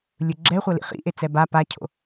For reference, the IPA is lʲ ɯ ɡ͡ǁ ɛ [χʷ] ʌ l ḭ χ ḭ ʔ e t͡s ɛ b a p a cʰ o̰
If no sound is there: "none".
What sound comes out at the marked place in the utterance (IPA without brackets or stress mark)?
χʷ